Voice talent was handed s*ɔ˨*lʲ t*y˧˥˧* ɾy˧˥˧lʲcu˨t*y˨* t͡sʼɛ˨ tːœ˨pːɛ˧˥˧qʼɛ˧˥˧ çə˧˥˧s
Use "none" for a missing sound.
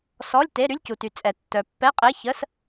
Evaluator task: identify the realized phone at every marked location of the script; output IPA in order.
ɔ˧˥˧, e˧˥˧, y˨

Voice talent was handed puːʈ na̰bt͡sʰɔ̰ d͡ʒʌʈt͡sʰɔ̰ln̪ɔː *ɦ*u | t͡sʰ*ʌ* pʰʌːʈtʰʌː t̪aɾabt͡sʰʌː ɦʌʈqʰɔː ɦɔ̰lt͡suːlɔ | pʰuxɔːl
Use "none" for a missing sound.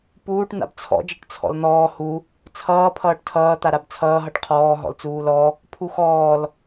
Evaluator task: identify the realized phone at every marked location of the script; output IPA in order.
h, ʌː

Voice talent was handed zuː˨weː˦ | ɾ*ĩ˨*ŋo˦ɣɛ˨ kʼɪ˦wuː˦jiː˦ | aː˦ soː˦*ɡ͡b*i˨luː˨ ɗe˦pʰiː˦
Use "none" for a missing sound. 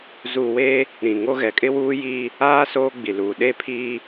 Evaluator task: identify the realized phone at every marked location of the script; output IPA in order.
ĩ˨, ɡ͡b

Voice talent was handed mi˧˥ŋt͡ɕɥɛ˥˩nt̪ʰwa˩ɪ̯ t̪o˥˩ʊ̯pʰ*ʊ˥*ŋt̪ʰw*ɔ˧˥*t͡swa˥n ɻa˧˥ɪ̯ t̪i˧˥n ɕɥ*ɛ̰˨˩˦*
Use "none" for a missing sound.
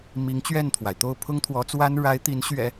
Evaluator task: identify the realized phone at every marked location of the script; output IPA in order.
ʊ˥, ɔ˧˥, ɛ̰˨˩˦

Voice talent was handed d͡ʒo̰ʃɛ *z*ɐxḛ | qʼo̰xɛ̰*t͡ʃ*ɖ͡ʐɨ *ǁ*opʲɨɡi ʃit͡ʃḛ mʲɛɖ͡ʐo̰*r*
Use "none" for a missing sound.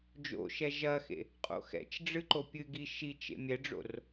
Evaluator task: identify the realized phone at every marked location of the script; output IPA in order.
ʒ, t͡ʃ, ǃ, r

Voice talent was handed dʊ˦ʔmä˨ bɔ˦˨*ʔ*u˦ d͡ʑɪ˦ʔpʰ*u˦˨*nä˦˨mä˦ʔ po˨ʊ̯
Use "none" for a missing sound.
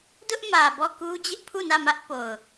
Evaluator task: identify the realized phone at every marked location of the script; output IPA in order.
k, u˦˨

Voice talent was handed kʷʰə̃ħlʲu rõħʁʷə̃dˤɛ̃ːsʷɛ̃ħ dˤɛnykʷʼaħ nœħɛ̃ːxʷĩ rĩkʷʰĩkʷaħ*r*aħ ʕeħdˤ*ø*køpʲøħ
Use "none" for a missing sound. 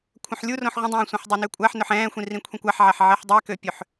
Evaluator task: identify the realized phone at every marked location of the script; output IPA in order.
ʕ, ɛ

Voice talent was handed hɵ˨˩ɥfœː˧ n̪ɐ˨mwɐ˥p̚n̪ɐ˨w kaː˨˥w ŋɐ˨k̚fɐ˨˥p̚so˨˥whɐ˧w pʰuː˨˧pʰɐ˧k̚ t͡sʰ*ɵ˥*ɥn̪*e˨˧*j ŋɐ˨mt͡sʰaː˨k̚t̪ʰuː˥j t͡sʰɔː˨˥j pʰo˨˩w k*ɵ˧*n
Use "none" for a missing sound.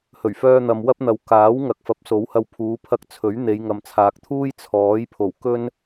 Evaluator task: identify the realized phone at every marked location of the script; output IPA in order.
ɵ˨˥, e˨˧, ɵ˥

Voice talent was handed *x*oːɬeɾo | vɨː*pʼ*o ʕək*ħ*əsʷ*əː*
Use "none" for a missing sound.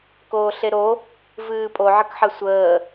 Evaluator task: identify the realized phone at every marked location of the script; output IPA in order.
k, pʼ, ħ, əː

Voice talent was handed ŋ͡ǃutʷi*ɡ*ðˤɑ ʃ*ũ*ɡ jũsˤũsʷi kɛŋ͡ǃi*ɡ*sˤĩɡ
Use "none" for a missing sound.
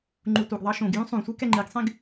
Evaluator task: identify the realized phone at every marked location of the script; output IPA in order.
ɡ, õ, ɡ

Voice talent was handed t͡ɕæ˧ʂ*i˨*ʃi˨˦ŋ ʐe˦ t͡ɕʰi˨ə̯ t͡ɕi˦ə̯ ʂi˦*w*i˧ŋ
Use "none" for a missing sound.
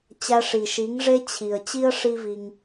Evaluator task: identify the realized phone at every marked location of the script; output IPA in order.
i˨, v

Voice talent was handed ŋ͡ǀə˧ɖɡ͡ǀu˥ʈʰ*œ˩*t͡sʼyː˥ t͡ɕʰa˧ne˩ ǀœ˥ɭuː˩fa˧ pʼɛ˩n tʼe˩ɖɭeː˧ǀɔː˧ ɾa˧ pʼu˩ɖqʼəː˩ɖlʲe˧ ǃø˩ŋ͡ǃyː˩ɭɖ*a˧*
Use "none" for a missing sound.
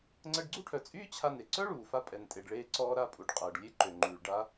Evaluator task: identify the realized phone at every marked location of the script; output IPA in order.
œ˩, a˧

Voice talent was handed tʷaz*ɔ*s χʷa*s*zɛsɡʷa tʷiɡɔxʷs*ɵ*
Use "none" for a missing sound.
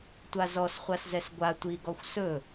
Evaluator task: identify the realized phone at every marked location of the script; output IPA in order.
ɔ, s, ɵ

